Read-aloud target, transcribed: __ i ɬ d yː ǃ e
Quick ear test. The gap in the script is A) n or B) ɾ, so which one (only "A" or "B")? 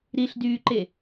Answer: B